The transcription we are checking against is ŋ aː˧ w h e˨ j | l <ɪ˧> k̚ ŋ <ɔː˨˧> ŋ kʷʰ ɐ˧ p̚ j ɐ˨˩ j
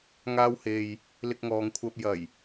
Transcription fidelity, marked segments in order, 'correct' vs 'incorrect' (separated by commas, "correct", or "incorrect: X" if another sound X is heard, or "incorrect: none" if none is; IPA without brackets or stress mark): correct, incorrect: ɔː˨